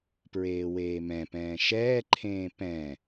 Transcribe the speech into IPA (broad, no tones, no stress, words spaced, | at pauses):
pɹeːweːmɛ̃pɛ̃ː ʃɛːǃʰẽː pɛ̃